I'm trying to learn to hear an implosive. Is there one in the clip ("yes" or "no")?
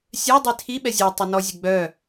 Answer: yes